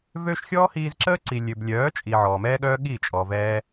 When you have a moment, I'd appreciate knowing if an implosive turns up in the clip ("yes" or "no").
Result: yes